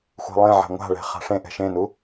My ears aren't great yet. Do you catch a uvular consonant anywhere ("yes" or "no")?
yes